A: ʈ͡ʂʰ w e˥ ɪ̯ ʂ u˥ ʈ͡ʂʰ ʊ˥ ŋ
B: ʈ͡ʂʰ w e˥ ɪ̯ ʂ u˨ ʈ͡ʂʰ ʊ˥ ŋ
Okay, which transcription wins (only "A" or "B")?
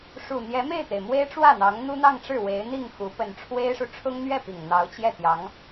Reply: B